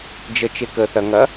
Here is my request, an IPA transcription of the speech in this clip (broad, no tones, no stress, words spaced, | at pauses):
d͡ʒə t͡ʃekə θɐ ŋɐ